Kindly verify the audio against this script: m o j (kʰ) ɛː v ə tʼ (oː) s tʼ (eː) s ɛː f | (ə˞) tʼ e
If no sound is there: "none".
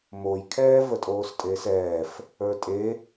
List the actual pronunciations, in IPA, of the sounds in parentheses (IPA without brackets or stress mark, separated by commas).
kʰ, oː, eː, ə˞